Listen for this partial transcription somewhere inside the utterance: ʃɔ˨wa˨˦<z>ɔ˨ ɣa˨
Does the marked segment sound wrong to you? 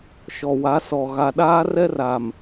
yes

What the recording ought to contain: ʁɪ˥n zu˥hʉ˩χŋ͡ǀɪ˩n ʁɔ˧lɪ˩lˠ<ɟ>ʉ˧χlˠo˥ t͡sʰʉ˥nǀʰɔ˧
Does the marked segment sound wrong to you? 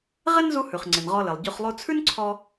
no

